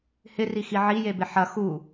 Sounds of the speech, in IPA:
h ɪ r i x i ʕ i j e b ɪ ħ ɐ x u

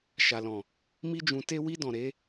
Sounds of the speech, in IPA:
ʃ a˨ l ɔ̃˨ | m i˦ d͡ʒ ũ˧ t e˦ w i˧ d ɔ̃˨ ɾ e˨˦

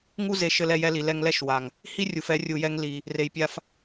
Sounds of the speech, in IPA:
ŋ u˧ z e˨ ʃ ɘ˧ l ɛ˧ j ɛ˧ l i˨ l ɛ˧ ŋ l ɛ˦ ʃ w a˨ ŋ | h i˦ rʲ u˨ f ɛ˧ rʲ u˨ j ɛ˧ ŋ l i˨ | r e˨ j pʲ a˧ f

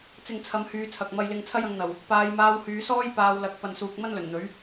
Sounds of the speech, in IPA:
t͡s ɪ˨ ŋ t͡sʰ ɐ˨˧ m h yː˨ t͡sʰ ɐ˨ k̚ m ɐ˧ j l ɪ˧ ŋ t͡sʰ ɐ˥ j ɐ˧ ŋ n̪ ɐ˨˩ w | p aː˨˧ j m aː˧ w h yː˨˧ s ɔː˥ j p aː˨˧ w l ɐ˨˥ k̚ p ɐ˨ n s uː˨ k̚ m ɐ˥ n l ɵ˨˩ n n̪ ɵ˨˥ ɥ

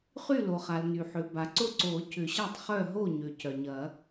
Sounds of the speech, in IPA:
χ y˥˨ l o˩ χ a˩ l n y˩ ħ ʏ˩ b a˩ ǀ ʊ˥˨ ǀ o˨˩˦ c ʏ˨˩˦ ɕ a˥˨ tˤ χ œ˥˨ ɦ o˥˨ ɲ ø˩ c œ˩ ɲ ɐ˨˩˦

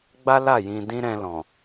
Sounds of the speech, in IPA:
ɡ͡b a˦ l a˦˨ j ĩ˧ d ĩ˦ ɾ ɛ̃˧ l ɔ̃˨

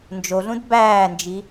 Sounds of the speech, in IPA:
n d͡ʒ o ɮ ũ d b æː n d͡ʒ i

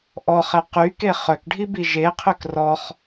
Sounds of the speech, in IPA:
ʔ ɔ χ ɛ q y k e χ œ k ɖʱ i b i ʒ e qʰ ø k r ɔ χ

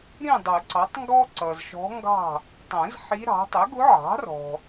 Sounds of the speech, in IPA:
ɾ ĩ˥˨ dˤ ʊ˨˩˦ ǀ ɑ˩˥ tˤ ŋ ɡ ɔ˥ ǀ ʌ˨ z ʃ ɔ̤˧˥ ŋ ɡ ɑ̤˥˨ | tˤ ɛ̃˨˩˦ z ħ i˧˥ ɾ ɑ̤˩˥ tˤ ɪ˩˥ ɡ ʊ˧˥ ʕ ɑ̤˩˥ r ɔ̤˨

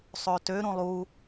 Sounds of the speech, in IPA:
sˤ ø t ø ɾ ũ lˠ u

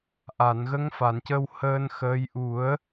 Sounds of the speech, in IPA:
ʔ a˨˩˨ n ɣ ə˧˥ ŋ f a˨˩˨ n c ə˧ w h əː˧ n x əː˧˥ j ʔ u˨˩˦ ə̯

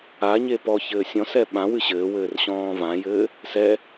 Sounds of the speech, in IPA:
a ɲ e p ɔ ç ɘː sʲ ɔ̃ s ɛ ɓ ã w ɨ ɕ ɘː w ɘː r ɕ ɔ̃ː v ã j ɘː | s ɛ

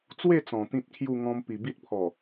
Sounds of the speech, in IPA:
t͡s w e˥˧ t͡s ɔ̃˨˩ t̪ ĩ˦ t̚ kʰ j u˥˧ ŋ ɔ̃˧ m p i˨˩ b i˦ t̚ pʰ ɔ˨˩

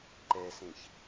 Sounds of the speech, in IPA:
ǃ ɛ s ẽ ç

